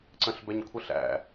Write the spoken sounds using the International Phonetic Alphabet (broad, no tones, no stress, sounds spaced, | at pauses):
ǀ ə̃ ɬ b ɛ ɲ kʷʰ ə ɬ æ̰